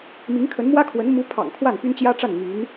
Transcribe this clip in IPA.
m i˧˥ ŋ kʰ ə˧˥ n m w ä˥ kʰ w ə˧˥ n m u˧˥ pʰ ɑ̰˨˩ ŋ kʰ w a˥˩ n p y˥ n t͡ɕ j ä˥ ʈ͡ʂ a˥˩ n m y˧˥ n

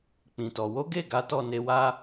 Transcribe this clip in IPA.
k͡p ĩ˨ t ɔ˨ w o˨˦ ɡ e˦˨ ɡ a˨˦ t ɔ˦˨ n e˧ w a˦

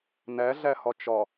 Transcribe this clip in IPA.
n æ ɮ æ h ɒ t͡ʃ ɒ

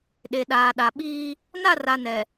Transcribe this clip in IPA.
ɗ e˨ ɗ aː˨ ɗ a˨ ɓ iː˦ | n a˦˨ r a˨ n ɛ˨

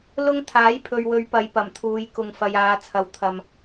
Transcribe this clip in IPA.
l ʊ˥ ŋ t̪ʰ aː˨˥ j pʰ ɵ˨ ɥ w ɵ˨˧ ɥ p ɐ˨˧ j p ɐ˨˩ m t̪ʰ uː˨˧ j k ʊ˨ ŋ f ɐ˨ j aː˨˧ t͡sʰ ɐ˨ w t̪ʰ ɐ˨ m

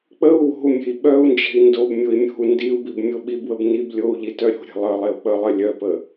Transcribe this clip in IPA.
k͡p ə u̯ w o̤ u̯ mʲ e̤ i̯ ɓ œ u̯ n d͡ʒ e̤ i̯ n d o b mʲ o i̯ mʲ o̤ u̯ n d i u̯ b i b mʲ o ɓ i b w ə b n i b lʲ o u̯ ʎ i t œ ɾʲ o̤ ɾʲ e̤ lˠ ə lˠ e u̯ k͡p ə lˠ ə lʲ œ p ə

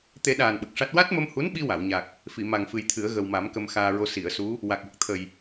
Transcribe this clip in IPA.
t̪ e˨˩˦ ɗ aː˨˩ n ɓ ə˨˩ k̚ ʂ a˦˥ t̚ w a˦˥ t̚ m ə˧ m h u˧˥ n ɓ i˧ w a˨˩˨ w ɲ a˨˩ k̚ | f i˨˩˨ m a˨˩ ŋ f ɨ˨˩ j t̪ʰ ɨ˨˩˦ ə̯ ɣ ə˨˩ w m a˨˩˦ m k ə˧ m x aː˧ ɹ o˧ s i˨˩˨ ə̯ s u˧˥ | w a˨˩ k̚ w ə˨˩ k̚ t̪ʰ ə˨˩ j

